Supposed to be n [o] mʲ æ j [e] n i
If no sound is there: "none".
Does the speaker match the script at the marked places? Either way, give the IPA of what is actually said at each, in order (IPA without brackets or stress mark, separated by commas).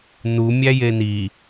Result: u, e